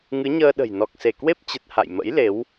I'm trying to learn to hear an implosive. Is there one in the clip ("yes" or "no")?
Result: yes